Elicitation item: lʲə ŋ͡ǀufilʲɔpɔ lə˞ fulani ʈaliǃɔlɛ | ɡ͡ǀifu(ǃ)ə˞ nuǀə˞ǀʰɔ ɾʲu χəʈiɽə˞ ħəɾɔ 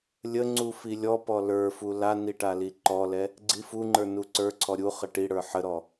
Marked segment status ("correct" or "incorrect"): incorrect